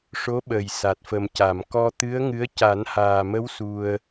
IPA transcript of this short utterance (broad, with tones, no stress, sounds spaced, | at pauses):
ʂ o˧˥ ɓ ə˨˩ j s a˨˩ t̚ f ə˨˩ m c a˨˩˨ m k ɔ˧ t̪ ɨ˧˥ ə̯ ŋ ɨ˧˥ ə̯ c a˨˩˦ n h aː˨˩ m ə˧˥ w s u˧ ə̯